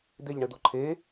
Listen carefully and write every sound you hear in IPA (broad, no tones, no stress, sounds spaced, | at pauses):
d̪ e ʎ ɳ ɘ d̪ o ǃʰ e